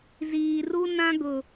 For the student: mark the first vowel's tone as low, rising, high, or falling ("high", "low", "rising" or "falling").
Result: low